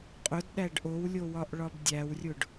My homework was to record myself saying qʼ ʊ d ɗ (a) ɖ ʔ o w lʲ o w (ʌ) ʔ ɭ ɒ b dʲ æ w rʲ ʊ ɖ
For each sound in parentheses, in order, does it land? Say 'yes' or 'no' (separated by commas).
no, no